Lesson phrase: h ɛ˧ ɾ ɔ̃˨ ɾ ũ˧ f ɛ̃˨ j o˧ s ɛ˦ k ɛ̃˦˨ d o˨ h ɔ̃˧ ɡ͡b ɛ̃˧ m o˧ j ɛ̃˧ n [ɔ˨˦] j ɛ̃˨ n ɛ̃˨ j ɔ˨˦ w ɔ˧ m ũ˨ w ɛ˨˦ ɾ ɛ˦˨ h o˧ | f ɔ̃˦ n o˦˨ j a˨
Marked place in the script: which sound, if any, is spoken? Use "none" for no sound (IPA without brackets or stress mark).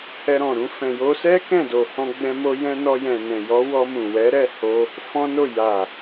ɔ˧